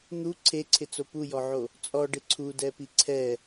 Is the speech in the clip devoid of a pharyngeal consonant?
no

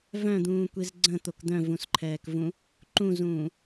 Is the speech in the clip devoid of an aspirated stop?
no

